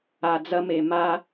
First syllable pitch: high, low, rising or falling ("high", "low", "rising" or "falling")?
low